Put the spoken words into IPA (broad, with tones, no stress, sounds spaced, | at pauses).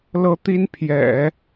l ɤ˥ t̪ i˥ n pʰ j ɛ̰˨˩˦